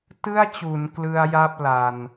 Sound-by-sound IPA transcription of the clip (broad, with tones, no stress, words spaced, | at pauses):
tɯ˥˩a̯t͡ɕuː˩˦n klɯ˦˥a̯ja˥˩p̚ la˧n